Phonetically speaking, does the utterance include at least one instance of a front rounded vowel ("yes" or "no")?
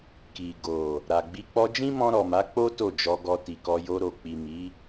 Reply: no